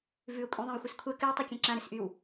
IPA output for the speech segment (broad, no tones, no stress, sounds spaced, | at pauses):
v ʉ ʊ̯ kʷʼ ĩ ðˤ ĩ w xʷ ɨ s kʷʰ ɛ k ɨ ɪ̯ tˤ ɨ kʲ ɛ̃ ǁ ã ɾ ɨ s ʔ y w